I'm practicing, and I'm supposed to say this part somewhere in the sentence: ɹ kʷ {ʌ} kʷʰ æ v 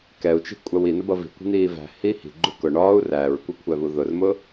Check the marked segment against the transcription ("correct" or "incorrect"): correct